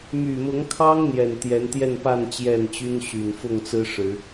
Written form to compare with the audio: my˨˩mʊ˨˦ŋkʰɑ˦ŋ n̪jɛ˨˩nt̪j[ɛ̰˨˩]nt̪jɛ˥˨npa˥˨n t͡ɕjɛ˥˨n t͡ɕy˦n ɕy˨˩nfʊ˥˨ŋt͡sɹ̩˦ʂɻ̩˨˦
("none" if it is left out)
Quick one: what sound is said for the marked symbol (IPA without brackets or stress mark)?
ɛ˨˦